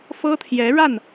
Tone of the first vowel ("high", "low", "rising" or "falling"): high